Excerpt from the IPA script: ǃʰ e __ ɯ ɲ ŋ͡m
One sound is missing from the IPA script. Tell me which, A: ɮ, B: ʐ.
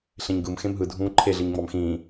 A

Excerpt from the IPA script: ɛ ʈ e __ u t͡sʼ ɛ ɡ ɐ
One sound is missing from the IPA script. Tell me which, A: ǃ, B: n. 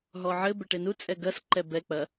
B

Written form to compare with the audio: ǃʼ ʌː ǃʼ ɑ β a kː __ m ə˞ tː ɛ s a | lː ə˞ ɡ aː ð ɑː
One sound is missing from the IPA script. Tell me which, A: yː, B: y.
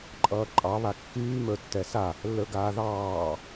A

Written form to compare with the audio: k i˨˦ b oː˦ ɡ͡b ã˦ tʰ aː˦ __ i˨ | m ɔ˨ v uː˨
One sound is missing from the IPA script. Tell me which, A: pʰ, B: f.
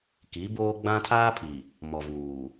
A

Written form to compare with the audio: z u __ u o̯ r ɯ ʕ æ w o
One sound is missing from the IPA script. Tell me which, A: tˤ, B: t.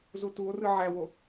B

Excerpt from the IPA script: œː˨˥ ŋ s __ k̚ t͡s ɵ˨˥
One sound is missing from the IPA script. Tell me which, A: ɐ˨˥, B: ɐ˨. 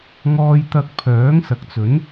B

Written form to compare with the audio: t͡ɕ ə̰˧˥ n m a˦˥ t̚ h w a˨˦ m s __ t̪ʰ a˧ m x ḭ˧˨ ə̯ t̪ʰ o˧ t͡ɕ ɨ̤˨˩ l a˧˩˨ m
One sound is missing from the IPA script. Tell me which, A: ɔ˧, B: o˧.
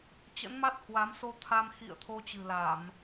B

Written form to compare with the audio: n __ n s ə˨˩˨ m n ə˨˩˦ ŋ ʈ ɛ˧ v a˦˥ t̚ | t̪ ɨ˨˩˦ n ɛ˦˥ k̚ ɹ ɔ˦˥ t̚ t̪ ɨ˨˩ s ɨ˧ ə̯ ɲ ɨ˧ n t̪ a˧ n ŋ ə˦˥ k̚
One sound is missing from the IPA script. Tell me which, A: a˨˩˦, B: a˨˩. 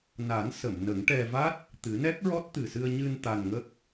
A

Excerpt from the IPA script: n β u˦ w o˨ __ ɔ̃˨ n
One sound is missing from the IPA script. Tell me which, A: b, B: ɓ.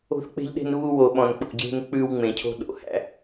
B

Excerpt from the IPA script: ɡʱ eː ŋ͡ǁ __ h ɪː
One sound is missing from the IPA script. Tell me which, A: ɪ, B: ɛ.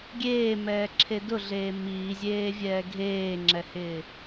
B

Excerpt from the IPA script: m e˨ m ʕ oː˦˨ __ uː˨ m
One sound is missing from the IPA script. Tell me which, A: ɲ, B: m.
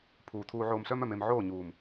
A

